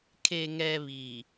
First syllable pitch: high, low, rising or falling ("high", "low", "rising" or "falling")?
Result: low